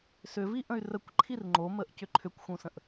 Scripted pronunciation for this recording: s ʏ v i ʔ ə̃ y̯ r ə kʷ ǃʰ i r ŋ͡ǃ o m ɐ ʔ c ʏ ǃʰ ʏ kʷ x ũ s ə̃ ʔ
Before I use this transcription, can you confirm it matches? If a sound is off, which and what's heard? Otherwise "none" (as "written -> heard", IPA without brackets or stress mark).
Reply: ɐ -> ə